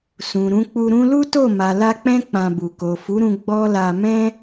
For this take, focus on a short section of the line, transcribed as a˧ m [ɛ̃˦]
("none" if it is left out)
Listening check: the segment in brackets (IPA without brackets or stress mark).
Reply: ɛ̃˦